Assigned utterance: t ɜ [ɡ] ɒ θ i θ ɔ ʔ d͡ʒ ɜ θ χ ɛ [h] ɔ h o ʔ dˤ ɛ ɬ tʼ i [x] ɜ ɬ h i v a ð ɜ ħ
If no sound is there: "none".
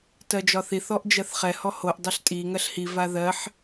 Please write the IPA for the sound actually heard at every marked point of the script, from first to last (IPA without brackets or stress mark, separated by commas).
d͡ʒ, h, ŋ